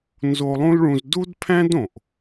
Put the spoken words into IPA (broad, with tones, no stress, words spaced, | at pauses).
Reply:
nzo˧lˠũ˥lɭũ˧z du˥dpʰæ̃˥dõ˩ʔ